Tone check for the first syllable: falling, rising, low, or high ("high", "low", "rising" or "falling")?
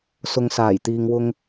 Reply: low